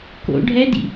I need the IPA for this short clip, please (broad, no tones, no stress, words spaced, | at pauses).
ko̰ ɖʱɛdḭ